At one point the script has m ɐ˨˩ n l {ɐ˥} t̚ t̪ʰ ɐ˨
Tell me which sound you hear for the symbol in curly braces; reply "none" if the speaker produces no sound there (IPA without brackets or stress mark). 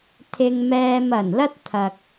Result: ɐ˥